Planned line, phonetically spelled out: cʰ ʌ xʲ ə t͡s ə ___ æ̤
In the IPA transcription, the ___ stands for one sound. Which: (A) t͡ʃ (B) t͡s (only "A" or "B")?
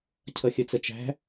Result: A